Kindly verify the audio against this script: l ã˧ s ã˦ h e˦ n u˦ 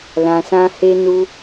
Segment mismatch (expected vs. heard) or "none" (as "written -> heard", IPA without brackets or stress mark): none